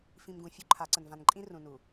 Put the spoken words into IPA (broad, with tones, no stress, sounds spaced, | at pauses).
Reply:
f ĩ˨ m ɡ ũ˨ fʲ u˦ ǃʰ a˨˦ ǀ ə˨ n v ã˨ n ǃʼ ĩ˦ r ũ˨ n u˨